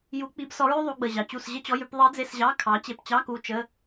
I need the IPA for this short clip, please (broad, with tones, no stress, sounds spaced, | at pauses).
j u˧˥ k͡p i˧˥ b s ɔ˧˥ ɹ ʉ˥ ðˤ u˧˥ ɡ͡b ə˧˩ ʑ ɑ˩ t͡ɕ u˧˩ s ʑ ə˥ t͡ɕ ɔ˧˥˧ j ʉ˧˥˧ p ðˤ i˧˥ d͡z e˧˥˧ s ʑ ɑ˧˥˧ kʰ ɑ˩˥ t͡ɕ e˧˩ p t͡ɕ ɑ˧˥˧ k u˧˩ t͡ʃ ə˧˥˧